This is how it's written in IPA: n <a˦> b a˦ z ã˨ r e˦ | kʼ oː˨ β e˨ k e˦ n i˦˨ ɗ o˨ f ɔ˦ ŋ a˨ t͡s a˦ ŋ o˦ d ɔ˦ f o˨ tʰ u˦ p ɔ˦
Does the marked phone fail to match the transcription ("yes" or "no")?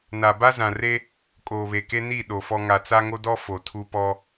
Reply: yes